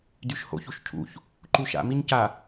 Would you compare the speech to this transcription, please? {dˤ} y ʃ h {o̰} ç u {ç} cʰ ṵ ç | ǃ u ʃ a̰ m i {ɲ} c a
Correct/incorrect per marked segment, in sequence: incorrect: d, correct, incorrect: ʃ, correct

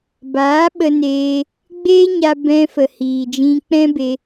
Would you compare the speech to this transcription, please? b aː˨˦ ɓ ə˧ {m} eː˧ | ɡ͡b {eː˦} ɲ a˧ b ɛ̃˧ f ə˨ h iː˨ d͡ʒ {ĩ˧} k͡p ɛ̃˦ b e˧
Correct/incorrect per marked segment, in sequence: incorrect: n, correct, correct

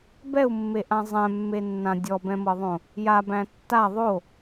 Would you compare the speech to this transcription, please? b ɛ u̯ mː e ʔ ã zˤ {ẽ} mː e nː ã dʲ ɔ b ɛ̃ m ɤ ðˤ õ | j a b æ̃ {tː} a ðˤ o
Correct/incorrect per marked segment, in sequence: incorrect: ɛ̃, correct

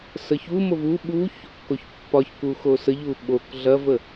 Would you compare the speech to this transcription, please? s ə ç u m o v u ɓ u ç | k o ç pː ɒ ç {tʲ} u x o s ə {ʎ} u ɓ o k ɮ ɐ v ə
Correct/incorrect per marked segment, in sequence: incorrect: k, correct

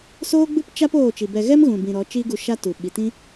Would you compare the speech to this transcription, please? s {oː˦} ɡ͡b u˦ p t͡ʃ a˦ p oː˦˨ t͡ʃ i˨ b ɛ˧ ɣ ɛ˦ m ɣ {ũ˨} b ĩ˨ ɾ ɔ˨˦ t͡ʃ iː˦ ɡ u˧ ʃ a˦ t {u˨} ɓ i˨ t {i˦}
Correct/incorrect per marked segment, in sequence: correct, correct, correct, incorrect: ĩ˦

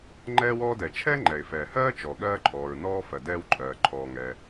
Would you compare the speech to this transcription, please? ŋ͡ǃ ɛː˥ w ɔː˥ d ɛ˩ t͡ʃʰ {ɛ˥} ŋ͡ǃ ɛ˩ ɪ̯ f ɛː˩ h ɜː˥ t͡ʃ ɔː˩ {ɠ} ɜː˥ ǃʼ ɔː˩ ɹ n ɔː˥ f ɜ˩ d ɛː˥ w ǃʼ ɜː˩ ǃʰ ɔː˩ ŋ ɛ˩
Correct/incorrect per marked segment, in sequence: correct, correct

